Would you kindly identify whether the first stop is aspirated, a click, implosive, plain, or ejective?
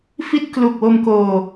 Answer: plain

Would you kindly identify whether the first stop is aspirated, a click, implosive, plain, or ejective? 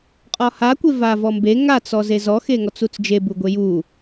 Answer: ejective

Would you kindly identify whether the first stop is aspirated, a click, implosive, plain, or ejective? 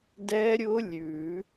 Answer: plain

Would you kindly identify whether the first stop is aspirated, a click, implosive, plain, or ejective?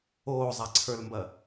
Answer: click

